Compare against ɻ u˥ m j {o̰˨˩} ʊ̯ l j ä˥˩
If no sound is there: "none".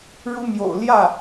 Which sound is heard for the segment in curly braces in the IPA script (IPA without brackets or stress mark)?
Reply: o̰˨˩